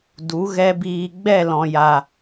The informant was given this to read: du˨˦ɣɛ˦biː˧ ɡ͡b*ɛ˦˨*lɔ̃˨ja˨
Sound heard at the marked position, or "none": ɛ˦˨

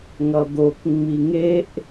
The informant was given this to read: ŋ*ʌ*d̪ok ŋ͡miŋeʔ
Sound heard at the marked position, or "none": ʌ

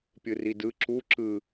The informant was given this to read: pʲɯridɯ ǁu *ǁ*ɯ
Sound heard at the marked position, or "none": ǁ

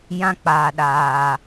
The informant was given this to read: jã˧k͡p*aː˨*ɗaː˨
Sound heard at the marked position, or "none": aː˨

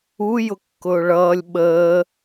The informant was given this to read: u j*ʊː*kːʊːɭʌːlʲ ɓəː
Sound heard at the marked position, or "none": ʊ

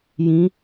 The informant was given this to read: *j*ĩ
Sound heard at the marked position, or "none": j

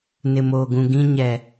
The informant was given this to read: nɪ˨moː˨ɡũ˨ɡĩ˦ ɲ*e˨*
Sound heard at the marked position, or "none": ɛ˨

